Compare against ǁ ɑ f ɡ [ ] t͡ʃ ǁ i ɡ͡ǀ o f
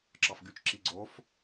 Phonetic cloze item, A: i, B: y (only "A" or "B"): B